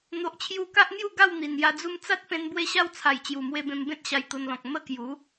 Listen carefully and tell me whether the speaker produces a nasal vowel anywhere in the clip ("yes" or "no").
yes